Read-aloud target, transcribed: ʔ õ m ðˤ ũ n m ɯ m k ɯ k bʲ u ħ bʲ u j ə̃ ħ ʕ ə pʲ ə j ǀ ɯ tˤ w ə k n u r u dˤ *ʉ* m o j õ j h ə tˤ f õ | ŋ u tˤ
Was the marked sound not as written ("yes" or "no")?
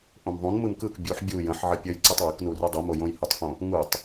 yes